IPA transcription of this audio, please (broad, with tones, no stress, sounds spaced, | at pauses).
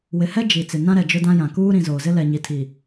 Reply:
w ɪ˨ h ɛ˦ d͡ʒ i˨ t͡s ɪ˨ n ã˦ ɾ ɛ˨ d͡ʒ ʊ˦ d ã˦ j ã˨ k uː˦ ɾ ĩ˨ z oː˨ z ɪ˦ l ɛ˨ ɲ i˨ tʰ i˨